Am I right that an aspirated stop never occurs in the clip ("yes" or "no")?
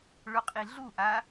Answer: yes